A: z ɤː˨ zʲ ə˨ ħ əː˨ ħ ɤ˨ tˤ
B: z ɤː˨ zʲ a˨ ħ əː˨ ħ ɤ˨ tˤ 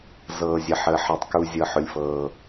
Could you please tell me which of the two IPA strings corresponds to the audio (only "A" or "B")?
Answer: A